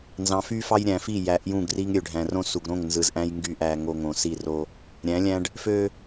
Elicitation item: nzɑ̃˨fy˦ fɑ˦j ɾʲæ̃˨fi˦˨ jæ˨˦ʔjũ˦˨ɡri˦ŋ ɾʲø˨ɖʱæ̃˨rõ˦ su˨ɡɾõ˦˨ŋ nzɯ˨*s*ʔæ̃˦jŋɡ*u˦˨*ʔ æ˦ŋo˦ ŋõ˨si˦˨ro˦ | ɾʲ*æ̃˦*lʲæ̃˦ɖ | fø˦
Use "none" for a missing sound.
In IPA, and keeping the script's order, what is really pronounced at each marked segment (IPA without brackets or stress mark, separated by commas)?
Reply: z, y˦˨, æ̃˨˦